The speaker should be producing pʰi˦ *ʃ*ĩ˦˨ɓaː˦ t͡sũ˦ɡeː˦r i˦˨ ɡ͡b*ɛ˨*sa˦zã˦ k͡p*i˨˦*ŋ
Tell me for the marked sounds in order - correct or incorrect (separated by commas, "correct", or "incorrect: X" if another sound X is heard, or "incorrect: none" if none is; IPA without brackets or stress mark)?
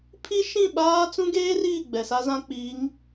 correct, correct, correct